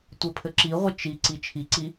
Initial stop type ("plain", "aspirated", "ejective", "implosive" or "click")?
plain